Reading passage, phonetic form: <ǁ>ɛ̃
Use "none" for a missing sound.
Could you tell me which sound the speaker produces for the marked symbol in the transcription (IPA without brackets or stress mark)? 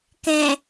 k